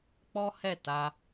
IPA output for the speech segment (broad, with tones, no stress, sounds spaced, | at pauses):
k͡p ɔ˦ h ɛ˦˨ t a˧